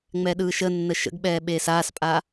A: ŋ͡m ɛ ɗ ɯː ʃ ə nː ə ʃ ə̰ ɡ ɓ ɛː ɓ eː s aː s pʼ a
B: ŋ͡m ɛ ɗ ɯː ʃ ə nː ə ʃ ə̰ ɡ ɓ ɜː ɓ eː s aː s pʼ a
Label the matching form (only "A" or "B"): A